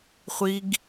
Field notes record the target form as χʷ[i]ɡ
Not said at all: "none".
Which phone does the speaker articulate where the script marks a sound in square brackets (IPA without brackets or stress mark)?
i